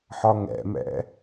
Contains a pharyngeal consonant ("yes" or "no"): yes